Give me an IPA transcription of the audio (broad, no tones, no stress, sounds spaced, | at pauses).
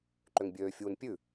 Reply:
ǃ ø ŋ bʲ øː fʲ uː n pʲ ʉ